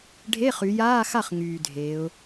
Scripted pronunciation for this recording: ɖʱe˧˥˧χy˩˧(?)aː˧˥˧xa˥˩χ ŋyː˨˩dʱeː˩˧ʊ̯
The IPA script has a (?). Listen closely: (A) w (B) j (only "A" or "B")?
B